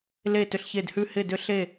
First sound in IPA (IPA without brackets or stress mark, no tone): l